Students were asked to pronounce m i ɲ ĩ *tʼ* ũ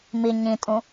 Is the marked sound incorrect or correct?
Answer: correct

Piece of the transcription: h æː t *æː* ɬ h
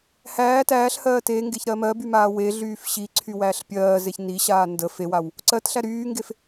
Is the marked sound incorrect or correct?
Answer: correct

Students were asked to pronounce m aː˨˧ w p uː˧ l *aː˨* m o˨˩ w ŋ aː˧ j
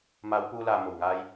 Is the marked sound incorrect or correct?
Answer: correct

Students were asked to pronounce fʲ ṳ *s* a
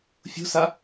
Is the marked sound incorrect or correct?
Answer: correct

